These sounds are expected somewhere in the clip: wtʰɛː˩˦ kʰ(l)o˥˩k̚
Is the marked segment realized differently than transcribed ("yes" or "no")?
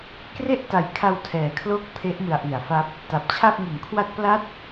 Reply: no